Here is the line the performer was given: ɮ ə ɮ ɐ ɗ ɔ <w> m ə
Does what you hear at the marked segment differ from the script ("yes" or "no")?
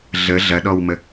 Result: no